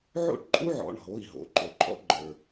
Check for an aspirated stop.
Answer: absent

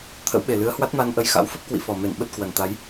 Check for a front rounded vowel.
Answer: absent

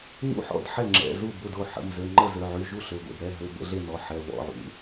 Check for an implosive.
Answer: absent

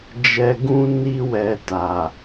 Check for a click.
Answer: absent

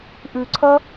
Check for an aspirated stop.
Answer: present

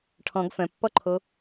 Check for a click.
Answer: present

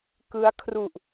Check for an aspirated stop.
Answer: present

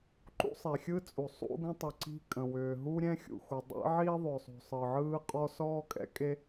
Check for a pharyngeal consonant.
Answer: present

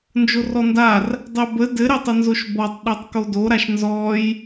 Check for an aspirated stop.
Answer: absent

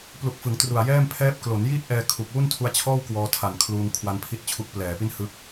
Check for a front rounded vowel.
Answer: absent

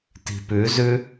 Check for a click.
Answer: absent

